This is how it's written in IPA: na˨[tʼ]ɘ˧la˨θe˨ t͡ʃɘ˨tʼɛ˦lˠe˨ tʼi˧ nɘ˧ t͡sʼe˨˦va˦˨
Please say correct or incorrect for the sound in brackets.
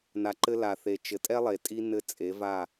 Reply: incorrect